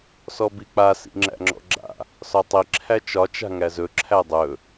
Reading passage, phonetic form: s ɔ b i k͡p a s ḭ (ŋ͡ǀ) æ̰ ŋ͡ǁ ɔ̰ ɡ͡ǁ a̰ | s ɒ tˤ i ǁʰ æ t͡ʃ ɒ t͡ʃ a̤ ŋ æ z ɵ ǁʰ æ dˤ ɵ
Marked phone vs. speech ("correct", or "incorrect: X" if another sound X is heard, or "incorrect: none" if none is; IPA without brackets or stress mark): incorrect: ŋ͡ǁ